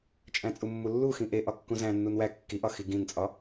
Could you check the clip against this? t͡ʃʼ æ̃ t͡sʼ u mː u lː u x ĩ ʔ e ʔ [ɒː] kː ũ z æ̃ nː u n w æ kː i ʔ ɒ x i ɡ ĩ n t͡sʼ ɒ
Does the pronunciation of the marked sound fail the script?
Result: yes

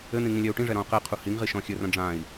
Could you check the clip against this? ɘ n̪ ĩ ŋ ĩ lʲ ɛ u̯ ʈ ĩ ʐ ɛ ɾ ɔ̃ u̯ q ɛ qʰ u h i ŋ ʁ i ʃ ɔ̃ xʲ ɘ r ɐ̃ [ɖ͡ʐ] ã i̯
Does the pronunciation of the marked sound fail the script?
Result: no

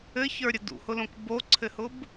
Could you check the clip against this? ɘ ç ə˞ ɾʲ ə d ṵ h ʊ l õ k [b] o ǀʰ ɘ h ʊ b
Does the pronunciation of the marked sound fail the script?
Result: no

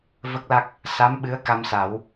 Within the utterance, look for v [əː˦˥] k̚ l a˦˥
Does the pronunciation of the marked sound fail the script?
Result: yes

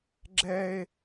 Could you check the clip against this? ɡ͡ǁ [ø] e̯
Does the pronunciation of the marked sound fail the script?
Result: yes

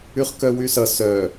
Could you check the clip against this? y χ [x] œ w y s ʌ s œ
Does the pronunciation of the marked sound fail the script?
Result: yes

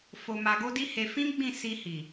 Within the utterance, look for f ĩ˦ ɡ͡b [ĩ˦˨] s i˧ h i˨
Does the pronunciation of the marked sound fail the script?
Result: no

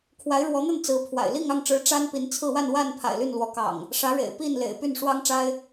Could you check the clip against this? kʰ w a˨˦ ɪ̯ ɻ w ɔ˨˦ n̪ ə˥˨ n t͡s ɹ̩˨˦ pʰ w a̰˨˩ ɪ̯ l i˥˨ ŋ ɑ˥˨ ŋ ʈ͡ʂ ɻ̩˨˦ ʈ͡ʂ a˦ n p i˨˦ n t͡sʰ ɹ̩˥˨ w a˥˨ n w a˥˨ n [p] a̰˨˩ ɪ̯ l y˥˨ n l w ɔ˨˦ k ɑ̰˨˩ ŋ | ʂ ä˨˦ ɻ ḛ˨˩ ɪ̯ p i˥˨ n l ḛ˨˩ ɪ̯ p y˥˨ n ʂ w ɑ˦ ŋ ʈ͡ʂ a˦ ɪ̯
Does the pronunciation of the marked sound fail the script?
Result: yes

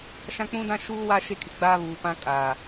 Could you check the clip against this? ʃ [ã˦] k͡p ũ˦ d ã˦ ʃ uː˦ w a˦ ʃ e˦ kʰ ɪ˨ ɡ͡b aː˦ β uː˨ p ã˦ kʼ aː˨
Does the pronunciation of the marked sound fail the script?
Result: no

